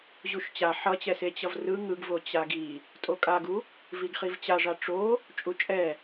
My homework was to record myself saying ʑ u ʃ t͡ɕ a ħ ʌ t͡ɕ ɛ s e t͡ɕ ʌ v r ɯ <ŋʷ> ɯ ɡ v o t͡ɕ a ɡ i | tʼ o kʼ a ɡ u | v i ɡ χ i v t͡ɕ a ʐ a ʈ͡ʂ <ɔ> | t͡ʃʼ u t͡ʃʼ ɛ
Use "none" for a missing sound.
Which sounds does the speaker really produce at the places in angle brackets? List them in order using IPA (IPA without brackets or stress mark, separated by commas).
ŋ, o